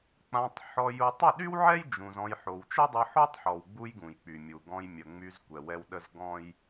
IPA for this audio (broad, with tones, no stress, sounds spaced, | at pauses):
k͡p ã˧ tˤ ħ ɔ˧ j u˧ tˤ ə˦˨ ɗ y˦ w ʕ ɛ˦ j d͡ʒ ũ˧ z ɔ̃˦ j ħ o˧ w t͡ʃ ə˦ dˤ o˧ ħ o˦ tˤ ħ ɔ˨ w ɡ͡b u˧ j ɡ ũ˨ j k͡p y˨ mʲ u˨ ɡ ɔ̃˧ j mʲ ə˨ ŋ͡m y˧ z kʷ ɛ˨ w ɛ˧ w ɗ ə˦ z ɡ ɔ̃˦ j